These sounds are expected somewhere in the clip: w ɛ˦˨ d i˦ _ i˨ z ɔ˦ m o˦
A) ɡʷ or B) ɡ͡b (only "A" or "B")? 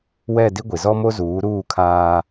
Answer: A